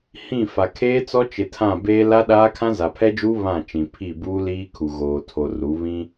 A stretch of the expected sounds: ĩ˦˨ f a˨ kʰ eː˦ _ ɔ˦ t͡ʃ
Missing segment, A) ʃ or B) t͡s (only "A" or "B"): B